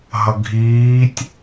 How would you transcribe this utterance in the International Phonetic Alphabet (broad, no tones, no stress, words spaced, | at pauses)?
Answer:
ɦʌɡʱiːtʲ